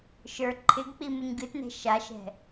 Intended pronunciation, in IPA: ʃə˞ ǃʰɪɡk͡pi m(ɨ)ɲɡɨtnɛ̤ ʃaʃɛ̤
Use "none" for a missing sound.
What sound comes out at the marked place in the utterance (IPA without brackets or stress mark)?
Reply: ɨ